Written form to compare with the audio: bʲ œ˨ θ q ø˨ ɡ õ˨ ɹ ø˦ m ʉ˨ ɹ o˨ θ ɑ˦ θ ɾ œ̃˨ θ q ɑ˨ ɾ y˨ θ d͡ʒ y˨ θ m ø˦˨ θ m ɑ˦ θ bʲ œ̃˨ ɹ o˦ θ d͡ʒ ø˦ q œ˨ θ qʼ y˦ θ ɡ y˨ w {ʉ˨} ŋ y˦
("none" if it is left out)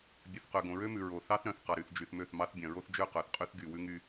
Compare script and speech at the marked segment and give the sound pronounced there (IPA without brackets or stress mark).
ʉ˦